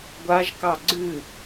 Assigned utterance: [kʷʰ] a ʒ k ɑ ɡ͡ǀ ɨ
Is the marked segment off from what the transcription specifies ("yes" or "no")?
yes